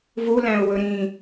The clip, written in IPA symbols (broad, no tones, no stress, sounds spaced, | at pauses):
v u l æ̃ ʊ̯ w ɵ ɾ ĩ